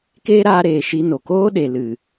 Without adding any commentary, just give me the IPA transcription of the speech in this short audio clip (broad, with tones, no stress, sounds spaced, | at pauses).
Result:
k eː˦ ɾ aː˧ ɾ eː˨ ʃ i˧ n o˨ k oː˦ ɗ e˨ l ɨ˨